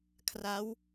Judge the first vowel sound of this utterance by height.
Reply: low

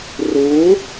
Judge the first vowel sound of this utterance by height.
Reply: high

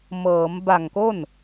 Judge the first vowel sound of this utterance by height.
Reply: mid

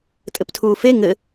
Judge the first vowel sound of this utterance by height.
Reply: mid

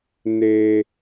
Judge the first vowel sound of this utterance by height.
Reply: mid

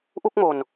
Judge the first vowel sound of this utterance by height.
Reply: high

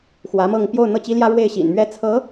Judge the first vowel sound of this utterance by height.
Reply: low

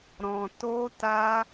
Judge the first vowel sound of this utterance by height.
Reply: mid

